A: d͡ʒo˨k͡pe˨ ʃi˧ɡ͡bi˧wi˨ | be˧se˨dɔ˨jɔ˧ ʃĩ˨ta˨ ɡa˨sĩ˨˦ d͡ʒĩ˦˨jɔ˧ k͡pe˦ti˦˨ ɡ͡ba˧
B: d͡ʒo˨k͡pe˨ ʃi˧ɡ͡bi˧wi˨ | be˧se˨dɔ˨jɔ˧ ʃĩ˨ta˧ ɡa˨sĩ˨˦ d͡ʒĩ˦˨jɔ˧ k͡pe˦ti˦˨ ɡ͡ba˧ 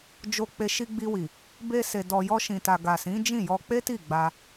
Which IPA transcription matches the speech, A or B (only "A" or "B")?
A